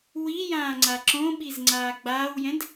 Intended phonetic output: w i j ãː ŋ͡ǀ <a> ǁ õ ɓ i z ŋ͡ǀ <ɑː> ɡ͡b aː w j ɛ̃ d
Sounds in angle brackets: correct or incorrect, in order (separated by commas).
correct, incorrect